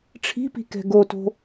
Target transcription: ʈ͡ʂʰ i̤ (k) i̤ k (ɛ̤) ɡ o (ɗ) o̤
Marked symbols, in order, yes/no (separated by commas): no, yes, no